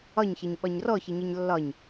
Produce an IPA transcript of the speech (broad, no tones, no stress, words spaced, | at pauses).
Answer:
ɒɲçɜɲ ɓɒɲrɔçɪɲʌɲ lːɒɲ